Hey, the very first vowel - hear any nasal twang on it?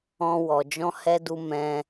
yes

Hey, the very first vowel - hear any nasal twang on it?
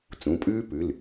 yes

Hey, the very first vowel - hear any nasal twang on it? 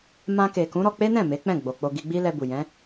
yes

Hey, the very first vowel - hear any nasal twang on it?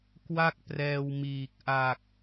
no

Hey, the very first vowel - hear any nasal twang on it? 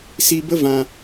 no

